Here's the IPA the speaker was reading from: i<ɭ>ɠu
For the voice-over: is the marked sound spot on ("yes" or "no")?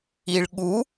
yes